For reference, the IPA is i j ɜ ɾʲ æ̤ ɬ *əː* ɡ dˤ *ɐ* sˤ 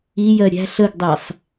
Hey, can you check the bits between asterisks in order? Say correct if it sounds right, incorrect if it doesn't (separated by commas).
incorrect, incorrect